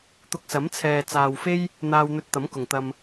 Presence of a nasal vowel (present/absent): absent